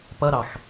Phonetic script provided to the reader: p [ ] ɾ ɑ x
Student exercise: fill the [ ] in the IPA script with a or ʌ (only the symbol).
ʌ